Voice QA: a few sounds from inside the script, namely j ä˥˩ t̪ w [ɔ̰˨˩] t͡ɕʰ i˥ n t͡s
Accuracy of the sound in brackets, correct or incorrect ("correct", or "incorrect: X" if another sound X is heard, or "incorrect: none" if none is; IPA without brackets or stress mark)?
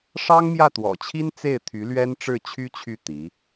correct